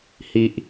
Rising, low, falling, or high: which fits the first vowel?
low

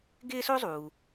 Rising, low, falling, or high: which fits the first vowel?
high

